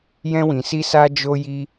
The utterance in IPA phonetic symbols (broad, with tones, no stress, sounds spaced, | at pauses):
j ɛ̃˧ w ĩ˨ s i˧ s a˧ d͡ʒ o˧ j i˧